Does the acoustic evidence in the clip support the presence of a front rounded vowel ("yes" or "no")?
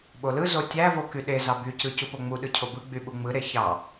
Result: yes